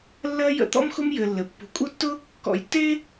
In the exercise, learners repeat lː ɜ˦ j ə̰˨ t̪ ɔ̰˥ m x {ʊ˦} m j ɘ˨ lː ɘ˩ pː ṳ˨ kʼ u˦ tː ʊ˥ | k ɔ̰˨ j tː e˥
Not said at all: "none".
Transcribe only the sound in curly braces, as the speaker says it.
ʊ˦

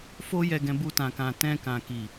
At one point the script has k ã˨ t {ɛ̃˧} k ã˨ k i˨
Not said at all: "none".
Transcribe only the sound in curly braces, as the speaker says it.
ɛ̃˧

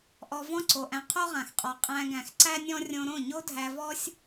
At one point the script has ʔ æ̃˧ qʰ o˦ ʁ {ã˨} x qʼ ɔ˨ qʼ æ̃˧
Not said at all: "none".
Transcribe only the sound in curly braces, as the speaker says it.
ã˨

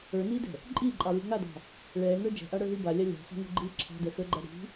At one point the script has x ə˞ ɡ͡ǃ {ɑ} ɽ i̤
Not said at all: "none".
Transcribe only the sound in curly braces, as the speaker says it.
a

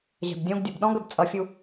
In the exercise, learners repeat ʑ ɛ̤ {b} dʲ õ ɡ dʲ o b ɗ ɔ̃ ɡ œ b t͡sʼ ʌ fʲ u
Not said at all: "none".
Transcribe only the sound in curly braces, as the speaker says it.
b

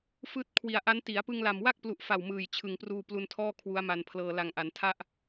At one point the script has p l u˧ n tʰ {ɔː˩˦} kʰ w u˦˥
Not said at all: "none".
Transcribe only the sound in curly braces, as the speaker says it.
ɔː˥˩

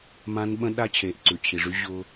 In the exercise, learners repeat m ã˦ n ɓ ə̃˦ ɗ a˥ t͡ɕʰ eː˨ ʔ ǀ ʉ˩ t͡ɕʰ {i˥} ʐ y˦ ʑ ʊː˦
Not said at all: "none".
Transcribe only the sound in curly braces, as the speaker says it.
i˩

